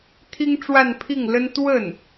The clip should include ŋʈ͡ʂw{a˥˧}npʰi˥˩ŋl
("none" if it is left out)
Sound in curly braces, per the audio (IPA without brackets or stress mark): a˥˧